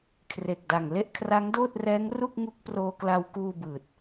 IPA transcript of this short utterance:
kʰre˨˩k̚da˨˩ŋ le˥˩ʔkʰra˦˥ŋdoː˥˩t̚rɛː˦˥ŋ ru˥˩k̚ ŋu˦˥k̚proː˧kla˧wkuː˧ bɯː˨˩t̚

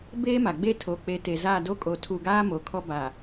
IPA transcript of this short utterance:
beː˦ma˨ɡ͡be˦ tʰo˨k͡pe˨˦te˨za˦˨ do˦kʼo˨tʰu˨ɡaː˦ mo˨kʰɔ˦ba˨

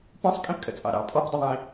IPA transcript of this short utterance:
pɔ̃sˤkʼĩpkʼə̰t͡sʼɑ̰ ɾɑ̰ pʼɔpdˤəðˤĩː

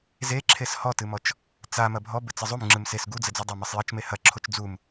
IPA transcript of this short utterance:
zeǁʰes hɔtɨmɔt͡ʃ | t͡sa mɐbʱɔ bɘt͡sɘzˤum ŋ͡ǁɨmses ɡud͡zɘd͡zu dˤamɘsˤjɐt͡ʃ mehɐ ǁʰot͡ʃd͡zum

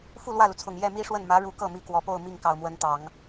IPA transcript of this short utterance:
fu˥˧lwä˥˩lu˩t͡sʰʊ˨˩ŋ jɛ˥˩mi˥ʂwə˥˩n mä˧˥ ɻu˧˥kɤ˥˩mi˧˥ kwɔ˧˥po˥˧ʊ̯ mi˥˩ŋkɑ˨˩ʊ̯mwə˧˥nt̪ɑ˨˩˦ŋ

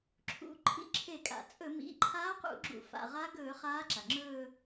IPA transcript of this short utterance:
ǁʰṵ˩˧ ǃʰḭ˧˥ǁʰe˧˩˧kʼa̰˩t͡sʼɵ˧˩˧ mḭ˩˧˩ǃʰaː˧˥qṵ˧˩˧ ɡ͡ǁṵ˧˩˧fa̰˩˧˩ʁa˧˥ ɡɵː˧˩˧ χaː˧˥ǁa˩ŋ͡ǁɵː˥˧

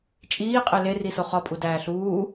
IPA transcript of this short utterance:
t͡ʃʼiːqʼe leriso χɒpʼudæː ɬuː

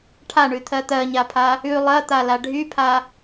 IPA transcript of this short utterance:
ʈʰaɳʉt̪ʰɜ t̪ɜɲapʰa | ʉ lˠɜt̪ala ɖʱypʰa

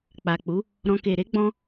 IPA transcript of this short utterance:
k͡pa˨k͡pu˨˦ | ɾɔ̃˨ke˨ɾe˨˦ ɡ͡bɔ̃˧

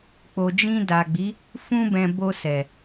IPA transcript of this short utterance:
k͡po˨d͡ʒĩ˧da˨ɡ͡bi˨˦ | fũ˧bɛ̃˨ bo˧sɛ˨

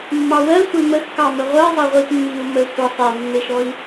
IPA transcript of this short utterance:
mːɑwɜ sʷeməx kɑməʁʷɜzˤə ʁʷitmːiu̯ mə sʷə sˤemːeʃɔi̯

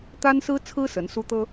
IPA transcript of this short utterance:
t̪a˥nsɹ̩˥t͡sʰɹ̩˥ sə˧˥n su˥t̪ɤ˥

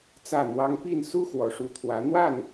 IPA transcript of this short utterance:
t͡sä˥˩n̪wɑ˥ŋ pi˥˩nsu˥ xwɔ˧˥ʂu˧˥t̪ʰwä˧˥ n̪wa˥˩n

